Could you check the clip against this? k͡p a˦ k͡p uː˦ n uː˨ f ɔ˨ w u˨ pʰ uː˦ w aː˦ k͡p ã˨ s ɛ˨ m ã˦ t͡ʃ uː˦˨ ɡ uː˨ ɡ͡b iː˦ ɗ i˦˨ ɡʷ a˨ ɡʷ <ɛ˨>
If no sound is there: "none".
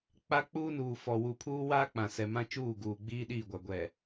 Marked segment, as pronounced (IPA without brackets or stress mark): ɛ˨